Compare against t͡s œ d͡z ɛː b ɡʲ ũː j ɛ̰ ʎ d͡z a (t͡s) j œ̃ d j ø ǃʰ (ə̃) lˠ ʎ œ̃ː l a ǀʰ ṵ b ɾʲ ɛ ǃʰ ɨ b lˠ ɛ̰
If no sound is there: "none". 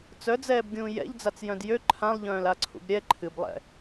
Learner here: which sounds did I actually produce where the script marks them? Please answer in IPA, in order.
t͡s, ã

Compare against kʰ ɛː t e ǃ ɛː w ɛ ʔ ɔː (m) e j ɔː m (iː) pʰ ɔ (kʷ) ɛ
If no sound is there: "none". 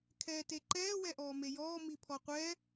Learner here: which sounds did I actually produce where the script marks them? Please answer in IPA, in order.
m, i, qʷ

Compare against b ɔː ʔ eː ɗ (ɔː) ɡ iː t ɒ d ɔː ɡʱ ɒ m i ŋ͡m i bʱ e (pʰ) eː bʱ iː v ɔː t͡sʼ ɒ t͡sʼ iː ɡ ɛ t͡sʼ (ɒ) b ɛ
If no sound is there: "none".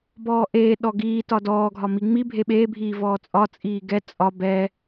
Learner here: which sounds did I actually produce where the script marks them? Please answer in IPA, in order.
ɔ, ɓ, ɒ

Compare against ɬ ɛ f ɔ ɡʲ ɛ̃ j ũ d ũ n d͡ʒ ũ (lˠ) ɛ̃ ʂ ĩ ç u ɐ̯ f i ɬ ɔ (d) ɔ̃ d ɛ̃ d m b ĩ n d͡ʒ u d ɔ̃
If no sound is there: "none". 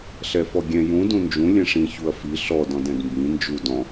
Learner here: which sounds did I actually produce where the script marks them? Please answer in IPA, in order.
lʲ, d

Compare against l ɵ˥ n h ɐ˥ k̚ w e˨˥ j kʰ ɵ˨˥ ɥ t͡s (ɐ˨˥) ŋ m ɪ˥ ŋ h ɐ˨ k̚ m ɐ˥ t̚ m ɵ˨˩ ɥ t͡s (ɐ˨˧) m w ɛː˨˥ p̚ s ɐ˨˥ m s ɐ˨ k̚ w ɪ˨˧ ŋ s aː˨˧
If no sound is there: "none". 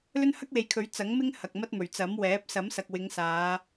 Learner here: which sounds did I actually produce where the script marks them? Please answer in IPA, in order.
ɐ˨˥, ɐ˨˥

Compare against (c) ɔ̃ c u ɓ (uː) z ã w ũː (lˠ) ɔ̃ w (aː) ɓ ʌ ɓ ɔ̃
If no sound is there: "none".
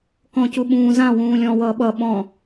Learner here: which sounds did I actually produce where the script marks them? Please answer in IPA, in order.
k, ũː, lʲ, ʌː

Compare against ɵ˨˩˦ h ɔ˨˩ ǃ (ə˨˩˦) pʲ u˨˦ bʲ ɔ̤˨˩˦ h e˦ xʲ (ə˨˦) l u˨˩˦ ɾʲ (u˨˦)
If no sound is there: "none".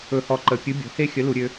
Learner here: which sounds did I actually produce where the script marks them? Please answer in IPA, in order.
ə˨˩˦, ə˨˦, ø˨˦

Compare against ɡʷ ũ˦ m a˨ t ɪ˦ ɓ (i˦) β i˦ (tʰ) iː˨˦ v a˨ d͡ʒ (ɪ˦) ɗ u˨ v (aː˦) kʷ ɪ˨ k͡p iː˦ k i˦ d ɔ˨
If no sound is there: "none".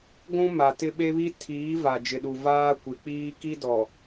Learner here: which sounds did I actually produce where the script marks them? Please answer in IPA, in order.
e˦, tʰ, ɪ˨, aː˦

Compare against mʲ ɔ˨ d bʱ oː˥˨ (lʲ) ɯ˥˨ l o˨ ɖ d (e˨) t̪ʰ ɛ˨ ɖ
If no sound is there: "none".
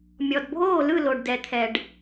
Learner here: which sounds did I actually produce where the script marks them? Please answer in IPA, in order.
l, ɛ˨

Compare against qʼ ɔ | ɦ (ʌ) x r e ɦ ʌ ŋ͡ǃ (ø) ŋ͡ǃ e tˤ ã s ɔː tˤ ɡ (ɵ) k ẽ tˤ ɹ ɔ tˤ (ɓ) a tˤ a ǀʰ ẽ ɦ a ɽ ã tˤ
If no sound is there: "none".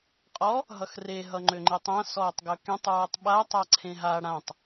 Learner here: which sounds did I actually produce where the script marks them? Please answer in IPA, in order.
ʌ, ø, ɵ, ɓ

